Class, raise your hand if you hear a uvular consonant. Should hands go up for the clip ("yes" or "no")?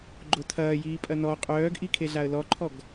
yes